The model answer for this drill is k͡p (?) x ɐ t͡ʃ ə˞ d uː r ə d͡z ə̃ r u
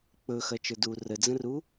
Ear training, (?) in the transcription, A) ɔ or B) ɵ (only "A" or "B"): B